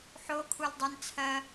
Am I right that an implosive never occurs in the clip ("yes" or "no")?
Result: yes